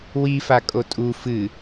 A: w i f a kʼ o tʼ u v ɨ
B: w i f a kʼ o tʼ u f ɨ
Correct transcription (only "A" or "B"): B